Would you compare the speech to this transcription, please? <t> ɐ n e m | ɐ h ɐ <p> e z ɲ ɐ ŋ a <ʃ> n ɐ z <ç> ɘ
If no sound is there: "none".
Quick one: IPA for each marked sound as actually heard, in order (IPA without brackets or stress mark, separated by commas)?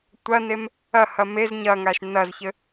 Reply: tʷ, m, ʃ, ç